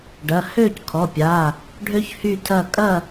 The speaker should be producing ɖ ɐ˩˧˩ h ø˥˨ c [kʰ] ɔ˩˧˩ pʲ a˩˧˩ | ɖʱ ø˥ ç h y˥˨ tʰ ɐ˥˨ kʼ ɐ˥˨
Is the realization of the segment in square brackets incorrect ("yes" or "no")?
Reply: no